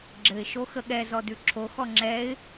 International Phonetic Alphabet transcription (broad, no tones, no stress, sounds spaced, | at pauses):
ɡ͡ǁ ɘ ɪ̯ ʃ o x ə ɠ ɛ z ɔ d ʉ ǁʰ o x ɔ ŋ͡ǁ ɛ ɪ̯